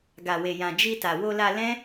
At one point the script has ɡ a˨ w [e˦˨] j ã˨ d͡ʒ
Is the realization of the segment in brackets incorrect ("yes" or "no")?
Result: yes